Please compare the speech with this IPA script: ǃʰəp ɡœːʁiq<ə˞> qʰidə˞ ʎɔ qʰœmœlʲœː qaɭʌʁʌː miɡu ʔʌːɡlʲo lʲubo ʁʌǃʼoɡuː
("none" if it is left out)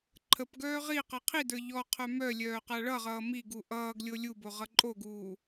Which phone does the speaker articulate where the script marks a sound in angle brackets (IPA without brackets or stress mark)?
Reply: ʌ